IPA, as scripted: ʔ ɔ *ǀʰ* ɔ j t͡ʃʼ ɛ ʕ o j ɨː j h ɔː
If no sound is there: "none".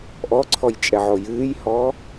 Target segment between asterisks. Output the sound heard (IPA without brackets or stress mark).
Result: ǀʰ